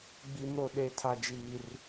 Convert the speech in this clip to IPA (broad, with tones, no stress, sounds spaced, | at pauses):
ɡ͡b i˦ m ɾ o˦ ɗ e˦ tʰ a˦ d͡ʒ iː˦ r